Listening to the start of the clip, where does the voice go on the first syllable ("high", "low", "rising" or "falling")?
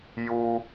high